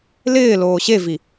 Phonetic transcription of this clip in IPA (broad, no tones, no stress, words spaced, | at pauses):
lɪː loːɕevi